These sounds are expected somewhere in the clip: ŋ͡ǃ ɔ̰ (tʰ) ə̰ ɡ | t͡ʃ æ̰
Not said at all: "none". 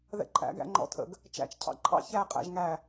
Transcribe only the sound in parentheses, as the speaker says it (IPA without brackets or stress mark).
tʰ